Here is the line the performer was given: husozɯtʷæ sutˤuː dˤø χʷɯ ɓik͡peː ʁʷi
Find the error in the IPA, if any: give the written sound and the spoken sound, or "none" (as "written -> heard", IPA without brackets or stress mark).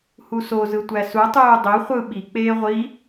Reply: none